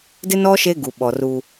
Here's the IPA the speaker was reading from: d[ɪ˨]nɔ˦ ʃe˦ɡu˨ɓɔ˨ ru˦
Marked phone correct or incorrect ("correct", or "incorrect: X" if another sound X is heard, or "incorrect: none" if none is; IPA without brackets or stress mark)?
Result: incorrect: ɪ˦